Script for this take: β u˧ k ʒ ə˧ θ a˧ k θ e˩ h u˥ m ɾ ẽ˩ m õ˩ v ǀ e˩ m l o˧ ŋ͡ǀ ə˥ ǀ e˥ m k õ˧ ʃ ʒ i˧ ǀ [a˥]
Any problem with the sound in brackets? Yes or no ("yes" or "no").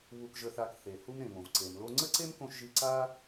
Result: no